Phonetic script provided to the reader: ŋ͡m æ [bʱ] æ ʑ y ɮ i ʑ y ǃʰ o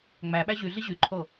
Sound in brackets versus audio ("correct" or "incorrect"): incorrect